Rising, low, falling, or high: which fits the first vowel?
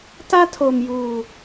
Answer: high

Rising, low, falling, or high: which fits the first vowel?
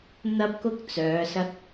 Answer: high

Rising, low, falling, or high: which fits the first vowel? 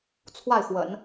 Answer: falling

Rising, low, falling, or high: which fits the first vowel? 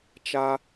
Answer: high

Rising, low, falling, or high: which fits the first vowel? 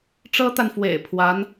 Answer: high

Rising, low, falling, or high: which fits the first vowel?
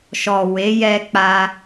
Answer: low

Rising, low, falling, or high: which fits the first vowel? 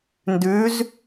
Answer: rising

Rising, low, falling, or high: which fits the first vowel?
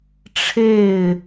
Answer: falling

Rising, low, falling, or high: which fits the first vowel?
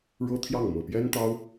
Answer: high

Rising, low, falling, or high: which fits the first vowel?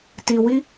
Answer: low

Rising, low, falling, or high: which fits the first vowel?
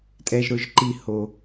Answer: low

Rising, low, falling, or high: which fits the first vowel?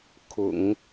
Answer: low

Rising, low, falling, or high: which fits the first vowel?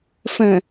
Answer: low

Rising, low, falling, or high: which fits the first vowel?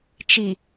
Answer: low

